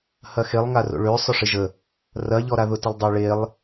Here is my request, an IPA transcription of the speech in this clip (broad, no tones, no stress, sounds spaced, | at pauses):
h ɐ x e lˠ ŋ a r o̰ ɭ ø sˤ œ ʂ ɪ ʒ ə | r ɐ ʎ ɔ ɾ a ð ʊ t ə lˠ dˤ a ɭ e lˠ